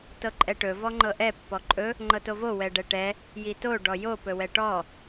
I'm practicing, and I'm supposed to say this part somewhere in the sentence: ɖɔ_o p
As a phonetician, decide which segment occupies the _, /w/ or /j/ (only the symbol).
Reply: j